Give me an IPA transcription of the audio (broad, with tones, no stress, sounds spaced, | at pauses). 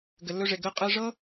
ɡ ɘ˩ lː ɵ˧ ʐ e˩ ɡ əː˧ qʼ ɘː˧ ʐ ɤ˥